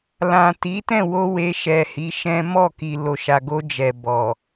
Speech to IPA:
l ã˨ t i˨˦ t ɛ̃˦˨ w o˧ w e˧ ʃ ɛ˨ h i˨˦ ʃ ɛ̃˦ m ɔ˦˨ k i˨ l o˨ ʃ a˨ ɡ o˧ d͡ʒ ɛ˨ b ɔ˨

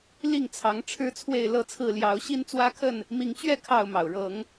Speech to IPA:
l i˥˨ ŋ t͡sʰ ɑ˨˦ ŋ ʈ͡ʂʰ ɻ̩˦ t͡sʰ w e˥˨ ɪ̯ l ɤ˥˨ t͡sʰ ɹ̩˥˨ l j ɑ˨˦ ʊ̯ ɕ i˦ n t͡s w ä˦ kʰ ə˥˨ n | m i˨˦ ŋ t͡ɕ ɥ ɛ˥˨ kʰ ɑ˥˨ ʊ̯ m ɑ˩ ʊ̯ ɻ ɤ˨˦ ŋ

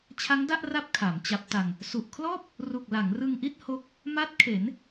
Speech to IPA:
t͡ɕʰ a˦˥ ŋ d a˥˩ ʔ r a˦˥ p̚ kʰ a˩˦ m t͡ɕ a˦˥ p̚ t a˧ ŋ | s u˨˩ ʔ kʰ l ɔː˥˩ p̚ | r u˨˩ k̚ l a˩˦ ŋ r ɯ˧ ŋ ʔ i˥˩ t̚ h o˦˥ k̚ | m a˦˥ t̚ kʰ e˩˦ n

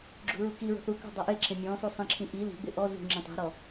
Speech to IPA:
ɡ͡ǁ ṳ ɹ u k i ɹ o̤ θ u k ṳ dˤ a ʔ e ǁʰ ẽ mʲ ɔ̃ s u sˤ ĩ ǁʰ ĩ ʔ i l i̤ ɡ͡b ɪ ʔ ɔ z ṳ ŋ͡ǁ ẽ tˤ ɛ̤ ɾ ɔ

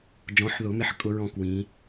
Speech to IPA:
d͡ʒ ɔ̃˨˦ ħ ð ʊ˨˩˦ m ɪ˨˦ ħ kʼ ʊ˦˥ ɹ ɔ̃˥˧ k w ĩ˨˦

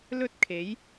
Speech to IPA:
l ɵ˥ t̚ kʰ e˨˥ j

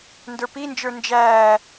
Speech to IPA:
n d ə˞ p i n d͡ʒ ə˞ n d͡ʒ æː

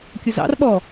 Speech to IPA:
kʲ ʊ z ɑ̰ r ɓ ɔ

